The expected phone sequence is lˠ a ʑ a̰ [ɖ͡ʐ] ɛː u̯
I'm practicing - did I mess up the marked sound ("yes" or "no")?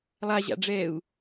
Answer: no